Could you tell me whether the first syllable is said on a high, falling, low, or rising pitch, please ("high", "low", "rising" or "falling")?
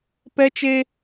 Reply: high